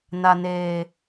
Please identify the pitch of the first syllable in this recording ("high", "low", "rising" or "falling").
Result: low